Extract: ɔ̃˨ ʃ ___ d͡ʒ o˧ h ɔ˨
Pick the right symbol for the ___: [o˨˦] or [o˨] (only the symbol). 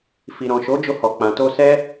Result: o˨˦